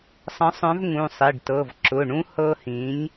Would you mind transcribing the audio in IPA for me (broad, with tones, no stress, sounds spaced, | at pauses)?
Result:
sˤ ə̃˨˥ sˤ œ̃˨˥ v ŋ ũ˩˧˩ sˤ i˩˧˩ ɖ t ɤ˩˧˩ v ǁ ʊ˩˧˩ ɳ ũ˦ h ɤ˦ h ĩ˨˥ ɲ